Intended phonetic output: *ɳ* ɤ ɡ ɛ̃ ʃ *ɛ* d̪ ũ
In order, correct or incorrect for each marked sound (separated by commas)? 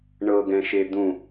correct, incorrect